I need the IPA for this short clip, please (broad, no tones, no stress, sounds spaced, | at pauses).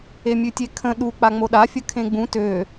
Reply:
e mʲ ʉ tʲ e kʰ ə̃ ɗ u k͡p a ŋ͡m o ɗ a fʲ ə kʰ ẽ ɡ͡b ũ t ø